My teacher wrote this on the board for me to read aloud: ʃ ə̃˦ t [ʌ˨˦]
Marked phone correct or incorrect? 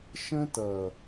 incorrect